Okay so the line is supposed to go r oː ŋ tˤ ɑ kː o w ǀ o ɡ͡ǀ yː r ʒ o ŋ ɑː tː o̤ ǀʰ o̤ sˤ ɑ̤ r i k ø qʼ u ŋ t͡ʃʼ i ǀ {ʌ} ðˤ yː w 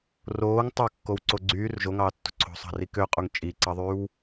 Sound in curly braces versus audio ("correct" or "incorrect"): incorrect